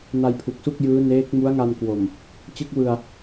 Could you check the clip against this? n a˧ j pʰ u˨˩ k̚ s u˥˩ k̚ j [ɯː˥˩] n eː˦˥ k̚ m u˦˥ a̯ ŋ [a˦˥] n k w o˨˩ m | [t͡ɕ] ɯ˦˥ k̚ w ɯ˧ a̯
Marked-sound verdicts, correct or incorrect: incorrect: ɯː˦˥, incorrect: a˧, correct

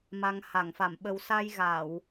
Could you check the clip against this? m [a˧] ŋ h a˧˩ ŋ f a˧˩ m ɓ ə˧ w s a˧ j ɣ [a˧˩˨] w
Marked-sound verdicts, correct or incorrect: correct, correct

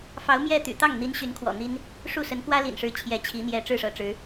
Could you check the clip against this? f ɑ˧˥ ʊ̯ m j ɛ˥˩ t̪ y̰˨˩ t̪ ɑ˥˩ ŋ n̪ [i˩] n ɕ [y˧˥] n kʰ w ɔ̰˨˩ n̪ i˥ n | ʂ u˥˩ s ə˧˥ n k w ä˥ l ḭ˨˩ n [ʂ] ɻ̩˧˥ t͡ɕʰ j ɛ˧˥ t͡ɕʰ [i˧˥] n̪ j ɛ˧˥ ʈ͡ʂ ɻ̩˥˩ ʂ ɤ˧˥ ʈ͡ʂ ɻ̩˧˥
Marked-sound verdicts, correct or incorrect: incorrect: i˧˥, correct, correct, correct

